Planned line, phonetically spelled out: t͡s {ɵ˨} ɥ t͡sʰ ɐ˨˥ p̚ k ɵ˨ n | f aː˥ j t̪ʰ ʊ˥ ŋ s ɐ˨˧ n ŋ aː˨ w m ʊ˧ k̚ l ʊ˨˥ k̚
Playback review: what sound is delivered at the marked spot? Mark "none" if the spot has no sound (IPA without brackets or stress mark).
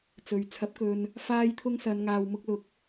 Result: ɵ˨